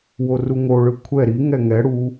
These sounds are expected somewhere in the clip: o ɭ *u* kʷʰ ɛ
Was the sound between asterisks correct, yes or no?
no